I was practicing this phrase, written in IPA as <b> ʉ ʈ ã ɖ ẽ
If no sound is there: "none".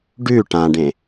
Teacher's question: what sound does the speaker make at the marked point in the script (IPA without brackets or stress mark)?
ɖ